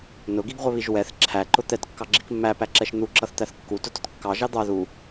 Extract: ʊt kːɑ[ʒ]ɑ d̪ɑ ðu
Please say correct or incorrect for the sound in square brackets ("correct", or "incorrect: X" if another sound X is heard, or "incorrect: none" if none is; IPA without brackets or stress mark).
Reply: correct